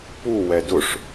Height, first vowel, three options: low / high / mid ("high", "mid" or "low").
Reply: high